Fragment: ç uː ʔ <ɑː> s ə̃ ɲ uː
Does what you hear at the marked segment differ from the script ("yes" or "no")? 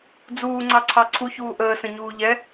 yes